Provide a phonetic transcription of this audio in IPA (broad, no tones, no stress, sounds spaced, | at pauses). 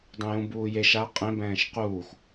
dˤ ũ j ũ b uː j e ʃ a qʼ ẽ b ɛ̃ː ʃ q uː x